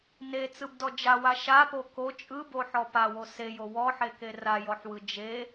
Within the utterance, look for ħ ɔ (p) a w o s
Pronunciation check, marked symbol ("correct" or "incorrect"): correct